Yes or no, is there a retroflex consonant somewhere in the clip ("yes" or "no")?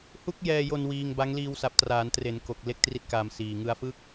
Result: no